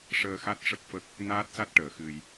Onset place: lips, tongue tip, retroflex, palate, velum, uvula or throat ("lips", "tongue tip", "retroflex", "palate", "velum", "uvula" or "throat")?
retroflex